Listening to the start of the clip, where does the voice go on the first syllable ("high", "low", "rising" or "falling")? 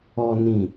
low